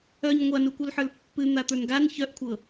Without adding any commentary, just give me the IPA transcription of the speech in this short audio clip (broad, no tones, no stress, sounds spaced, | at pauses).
œ ɲ ŋʷ a n u kʷ œ l ħ ə˞ l pː ɨ n̪ a t̪ ə˞ n ɡ a n ç œ ʔ kʷʰ ɤ